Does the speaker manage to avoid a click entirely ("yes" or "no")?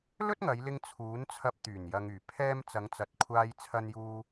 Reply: yes